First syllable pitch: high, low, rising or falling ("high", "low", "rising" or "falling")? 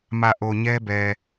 low